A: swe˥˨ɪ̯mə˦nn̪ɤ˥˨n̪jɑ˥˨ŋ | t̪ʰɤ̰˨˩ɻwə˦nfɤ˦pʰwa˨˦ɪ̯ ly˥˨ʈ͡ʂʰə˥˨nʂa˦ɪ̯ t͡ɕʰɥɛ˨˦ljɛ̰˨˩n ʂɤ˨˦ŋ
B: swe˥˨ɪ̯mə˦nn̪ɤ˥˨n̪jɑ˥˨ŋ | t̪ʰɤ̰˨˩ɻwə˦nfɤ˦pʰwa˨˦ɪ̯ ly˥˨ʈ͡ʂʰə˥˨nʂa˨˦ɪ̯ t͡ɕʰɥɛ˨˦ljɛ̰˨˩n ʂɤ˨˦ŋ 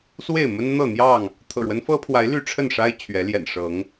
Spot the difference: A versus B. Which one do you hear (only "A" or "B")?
A